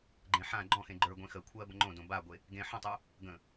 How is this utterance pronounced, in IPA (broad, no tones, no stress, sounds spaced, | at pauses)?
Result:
ɡ͡ǃ ẽ ħ ã ɡ͡ǃ ɔ̃ x ẽ ɡ͡ǃ ə˞ ɡʷ ẽ x ə kʷʰ ɜ b ə ŋ͡ǃ õ d õ b a ɡʷ e | ɡ ẽ ħ ə̃ tˤ ə˞ | ɡ ə̃